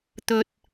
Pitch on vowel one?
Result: low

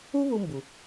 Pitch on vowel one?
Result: high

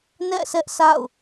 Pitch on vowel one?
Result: falling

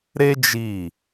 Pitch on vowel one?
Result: high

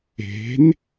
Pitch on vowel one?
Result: rising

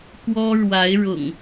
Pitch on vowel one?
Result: high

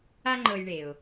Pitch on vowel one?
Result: high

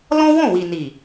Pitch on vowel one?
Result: high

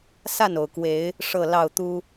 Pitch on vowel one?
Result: falling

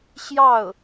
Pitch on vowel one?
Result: falling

